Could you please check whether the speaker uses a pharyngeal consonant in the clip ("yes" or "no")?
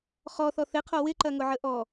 yes